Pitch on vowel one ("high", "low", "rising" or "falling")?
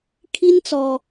high